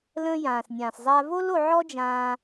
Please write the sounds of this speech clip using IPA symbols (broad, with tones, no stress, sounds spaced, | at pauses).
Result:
l ə̃ː˧ j ãː˩ s nʲ ãː˩ s zˤ a˧ v o˥ l o˧ ʕ ɔ˥ d͡ʒ ãː˧